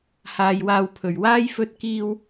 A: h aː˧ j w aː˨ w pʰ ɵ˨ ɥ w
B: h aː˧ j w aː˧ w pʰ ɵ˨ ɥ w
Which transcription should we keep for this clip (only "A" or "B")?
B